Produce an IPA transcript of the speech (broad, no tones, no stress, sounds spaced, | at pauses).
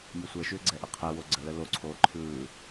nʲ ə sʷ ɛ ʃ ʏː ɡ͡ǀ ɛ ʔ ə qʰ ɛ w o ɡ͡ǀ ə l ə l o ǀʰ oː ǃʰ ɯː